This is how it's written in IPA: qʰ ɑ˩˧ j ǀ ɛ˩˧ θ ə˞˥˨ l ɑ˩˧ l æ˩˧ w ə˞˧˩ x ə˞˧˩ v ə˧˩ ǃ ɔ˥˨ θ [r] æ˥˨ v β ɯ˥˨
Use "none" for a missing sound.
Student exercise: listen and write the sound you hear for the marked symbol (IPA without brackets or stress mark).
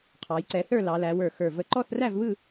r